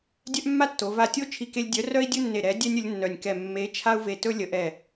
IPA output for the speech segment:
dʲ œ˦ ʔ mː a˦ tː o˨˦ v a˧˩ tʲ o˦ t͡ʃʰ i˦ k e˦ lʲ dʲ œ˨˦ r œ˦ i̯ dʲ ɵ˦ nː e˧˩ ɾ ɛ˨˦ dʲ ɛ˦ nʲ ə˨˦ lʲ nː œ˧˩ nʲ k ɛ˧˩ mː e˨˦ t͡ʃʰ a˦ u̯ v e˧˩ t ɵ˦ lʲ ə˨˦ ʔ ɛ˧˩

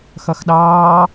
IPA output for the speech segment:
x ʌ x ɗ ɑː

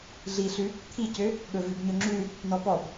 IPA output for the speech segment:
ɮ i ɬ ʉ | t̪ʰ i c ø | ɠ ɵ v i b ɲ ɵ ŋ͡ǁ ʉ | n ɔ p ɔ b

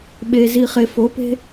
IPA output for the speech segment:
ɓ e˨ z i˨ χ e˨ f o˨˦ p e̤˦

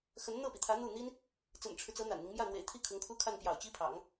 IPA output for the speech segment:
x ə˧˥ n n̪ ɤ˥˩ p i˩ t̪ʰ ä˧˥ n̪ u˥˩ n̪ i˥ n | t͡s ə̰˨˩ n ʈ͡ʂʰ ɻ̩˦ t͡s ɤ˧˥ n̪ a̰˨˩ n n̪ i˦ ŋ m j ä˥˩ n̪ w ḛ˨˩ ɪ̯ t̪ʰ i˥˩ kʰ ʊ˧˥ ŋ kʰ u˥ kʰ a˥˩ n p j ɑ̰˨˩ ʊ̯ t͡ɕ i˥ pʰ ɑ̰˨˩˦ ŋ

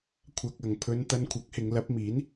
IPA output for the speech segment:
kʷʰ ɐ˧ k̚ ɐ˨ ŋ pʰ ɵ˧ n t̪ ɐ˧ n kʷʰ ɐ˨˥ k̚ h ɪ˨˧ ŋ l ɐ˨˥ p̚ m iː˨˥ n

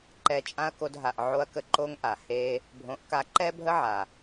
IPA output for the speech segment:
ǃ ɛ˧ t͡ʃʼ ã˦ ɐ̯ k o˧ d ɦ a˨ ʔ ʕ o˧ ɐ̯ k ə˧ ǃ o˦ ŋ ʔ a˨ h e˦ | bʱ õ˨˦ ʔ k a˧ ǃ ɛ˦ bʱ ə˦ ʕ a˨

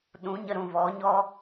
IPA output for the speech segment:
ɗ ũ˨˦ ɲ ə˧ ɾ ũ˨ v ɔ˨˦ ɲ ɔ˦

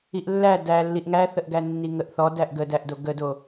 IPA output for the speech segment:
i ʔ lː æ d æ lː i ʔ ŋ æ θ ə ʔ ɡ æ nː i ŋ ə ʔ θ ɔ d æ ʔ ɡ ə d æ ʔ d o ɡ ə d o

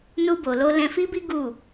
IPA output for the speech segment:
n u˧ b o˨ l o˧ l ɛ̃˧ f i˦ b i˦ ɡ u˦˨

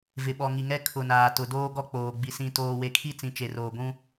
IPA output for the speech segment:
v ɪ˨ ɓ ɔ˨ ŋ i˨ ŋ ɛ˦ kʰ ʊ˨ n aː˨ t ʊ˨ d oː˦ ɡ ɔ˦ k͡p oː˨ ɡ͡b i˨ s ĩ˨ t oː˨ w e˨ kʰ i˦ t͡s ĩ˨ t͡ʃ e˨ r oː˨ ɡʷ ũ˦

